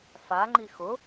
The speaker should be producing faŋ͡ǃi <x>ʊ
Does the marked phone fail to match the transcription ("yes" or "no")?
no